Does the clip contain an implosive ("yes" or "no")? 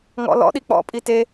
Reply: yes